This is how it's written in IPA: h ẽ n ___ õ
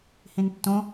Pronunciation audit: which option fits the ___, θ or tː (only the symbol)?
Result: tː